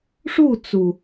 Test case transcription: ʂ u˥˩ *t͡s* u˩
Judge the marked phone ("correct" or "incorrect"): correct